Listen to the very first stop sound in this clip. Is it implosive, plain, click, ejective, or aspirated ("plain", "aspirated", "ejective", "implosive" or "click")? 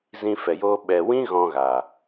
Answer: implosive